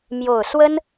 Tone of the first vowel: low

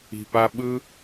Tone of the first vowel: low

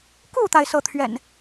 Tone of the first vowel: falling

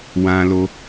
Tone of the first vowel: high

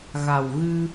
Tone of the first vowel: low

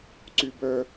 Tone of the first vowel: low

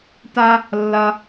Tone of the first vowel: high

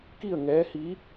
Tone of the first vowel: falling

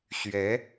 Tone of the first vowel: rising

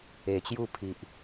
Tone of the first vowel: low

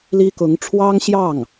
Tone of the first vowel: high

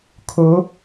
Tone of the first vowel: rising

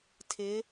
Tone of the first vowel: rising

